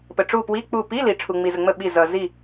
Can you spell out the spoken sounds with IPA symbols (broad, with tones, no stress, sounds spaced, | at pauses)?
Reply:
p ə˨ ʈ͡ʂ u˦˨ p w i˧˥˧ k͡p u˦˨ p i˧˥˧ l i˨ ʈ͡ʂʰ u˨ ŋ͡m i˨ z ə˨ ŋ͡m ə˦˨ ɓ i˦˨ z ʌ˨ z i˦˨